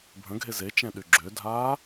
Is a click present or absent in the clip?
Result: present